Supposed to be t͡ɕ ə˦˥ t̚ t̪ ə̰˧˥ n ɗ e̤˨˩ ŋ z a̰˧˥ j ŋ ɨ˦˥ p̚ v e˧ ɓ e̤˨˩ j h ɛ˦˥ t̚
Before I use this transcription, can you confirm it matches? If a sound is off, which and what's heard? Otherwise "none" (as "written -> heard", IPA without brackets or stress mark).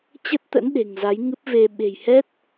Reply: a̰˧˥ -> a˨˦